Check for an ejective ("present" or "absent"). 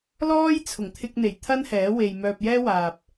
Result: absent